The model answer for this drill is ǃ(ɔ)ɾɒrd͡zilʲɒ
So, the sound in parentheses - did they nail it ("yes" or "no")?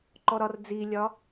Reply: yes